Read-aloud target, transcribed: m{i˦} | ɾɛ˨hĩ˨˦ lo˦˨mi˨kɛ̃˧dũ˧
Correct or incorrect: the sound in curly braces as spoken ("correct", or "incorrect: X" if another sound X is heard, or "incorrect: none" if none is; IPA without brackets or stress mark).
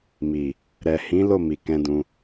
incorrect: i˨